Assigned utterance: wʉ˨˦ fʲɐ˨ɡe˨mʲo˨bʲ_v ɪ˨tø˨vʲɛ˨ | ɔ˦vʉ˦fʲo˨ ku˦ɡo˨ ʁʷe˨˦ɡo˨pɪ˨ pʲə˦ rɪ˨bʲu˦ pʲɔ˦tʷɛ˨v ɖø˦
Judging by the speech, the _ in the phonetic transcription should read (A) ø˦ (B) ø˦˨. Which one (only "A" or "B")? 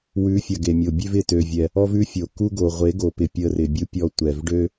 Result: A